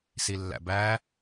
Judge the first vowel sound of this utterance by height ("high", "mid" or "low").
high